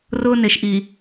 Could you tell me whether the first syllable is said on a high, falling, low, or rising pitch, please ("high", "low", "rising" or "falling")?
high